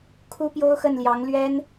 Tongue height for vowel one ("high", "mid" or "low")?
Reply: high